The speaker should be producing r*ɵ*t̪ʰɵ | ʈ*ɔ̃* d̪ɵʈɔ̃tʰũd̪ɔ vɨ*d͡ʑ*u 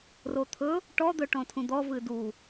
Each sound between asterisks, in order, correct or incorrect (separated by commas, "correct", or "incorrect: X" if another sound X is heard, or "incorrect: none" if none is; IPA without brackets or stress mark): incorrect: o, incorrect: ɔ, incorrect: d